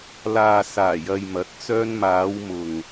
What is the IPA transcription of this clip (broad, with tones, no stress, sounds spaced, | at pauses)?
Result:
l aː˨ s aː˨˩ j ɐ˨ j m ɐ˨˥ t̚ t͡s œː˧ n m aː˨˧ w m ʊ˨ ŋ